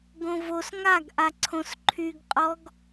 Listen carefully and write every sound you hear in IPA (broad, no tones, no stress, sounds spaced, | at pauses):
ɡ õ v o s ŋ a ɡ ʔ a ǀʰ õ s ǃʰ y ɡ qʼ ɔ ɡ